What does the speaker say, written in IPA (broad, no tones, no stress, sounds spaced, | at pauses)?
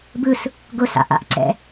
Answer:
b ɯ s | ɡ ʊ s a̰ ʔ a̰ ʔ ǀ ɛ̰